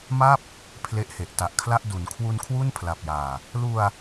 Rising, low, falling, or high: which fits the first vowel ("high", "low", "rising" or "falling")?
falling